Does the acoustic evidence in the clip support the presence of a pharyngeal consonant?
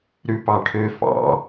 no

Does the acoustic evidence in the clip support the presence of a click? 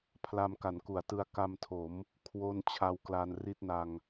no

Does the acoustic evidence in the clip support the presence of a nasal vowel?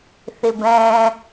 yes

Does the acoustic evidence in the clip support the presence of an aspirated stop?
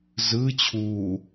yes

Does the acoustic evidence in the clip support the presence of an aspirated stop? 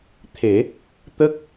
yes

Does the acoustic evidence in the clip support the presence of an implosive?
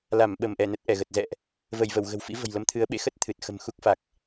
yes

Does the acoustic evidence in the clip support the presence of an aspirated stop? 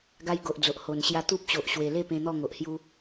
no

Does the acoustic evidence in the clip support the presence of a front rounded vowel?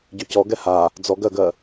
yes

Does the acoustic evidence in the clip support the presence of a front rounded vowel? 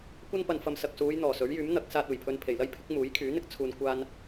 yes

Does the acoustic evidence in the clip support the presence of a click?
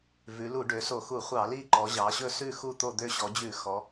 yes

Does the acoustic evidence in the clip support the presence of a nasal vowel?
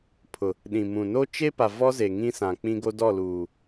yes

